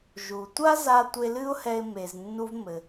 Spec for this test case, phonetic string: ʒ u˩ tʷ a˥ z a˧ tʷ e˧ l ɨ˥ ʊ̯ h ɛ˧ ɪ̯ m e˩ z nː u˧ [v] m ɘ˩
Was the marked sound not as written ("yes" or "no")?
no